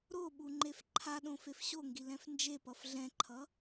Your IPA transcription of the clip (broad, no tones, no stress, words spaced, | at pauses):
ɾoɓu ŋ͡ǃefǃʰaɗõ fefɕoŋɡi lɛ̃fnd͡ʒepʌf ɮɛ̃ǃʰʌ